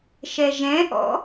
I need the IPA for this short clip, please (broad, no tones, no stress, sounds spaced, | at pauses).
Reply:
ʃ ɛ ʒ ɛ̃ ʔ ɔ̰